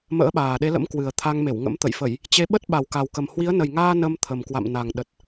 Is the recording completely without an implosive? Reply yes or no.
no